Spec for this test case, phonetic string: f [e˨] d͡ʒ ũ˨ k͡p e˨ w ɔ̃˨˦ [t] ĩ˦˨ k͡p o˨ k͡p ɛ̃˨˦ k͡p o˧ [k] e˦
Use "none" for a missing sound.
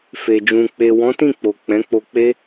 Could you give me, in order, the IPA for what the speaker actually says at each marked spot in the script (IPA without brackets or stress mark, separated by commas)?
e˨, t, k͡p